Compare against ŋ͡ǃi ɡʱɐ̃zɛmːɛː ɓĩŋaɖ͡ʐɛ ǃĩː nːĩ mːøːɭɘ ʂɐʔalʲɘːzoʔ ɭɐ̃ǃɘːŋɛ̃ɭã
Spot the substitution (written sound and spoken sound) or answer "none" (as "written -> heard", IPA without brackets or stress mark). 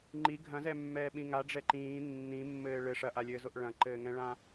øː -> ɘː